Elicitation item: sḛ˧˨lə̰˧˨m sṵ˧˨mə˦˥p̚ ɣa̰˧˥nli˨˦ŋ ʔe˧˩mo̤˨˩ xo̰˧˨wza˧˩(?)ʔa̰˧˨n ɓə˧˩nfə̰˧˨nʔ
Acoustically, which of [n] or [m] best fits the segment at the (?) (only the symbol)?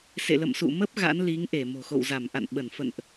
m